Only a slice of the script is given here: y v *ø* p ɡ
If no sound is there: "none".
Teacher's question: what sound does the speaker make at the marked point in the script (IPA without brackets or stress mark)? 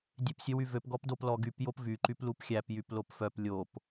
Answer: ø